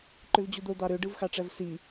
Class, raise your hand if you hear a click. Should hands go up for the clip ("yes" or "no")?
yes